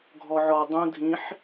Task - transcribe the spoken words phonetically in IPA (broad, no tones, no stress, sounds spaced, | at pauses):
ɡʱ ɔ ʕ ɔ dˤ ũ dʱ ĩ ħ